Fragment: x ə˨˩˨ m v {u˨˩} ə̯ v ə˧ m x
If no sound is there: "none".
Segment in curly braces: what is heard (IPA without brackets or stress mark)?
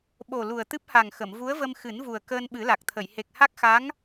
u˧˥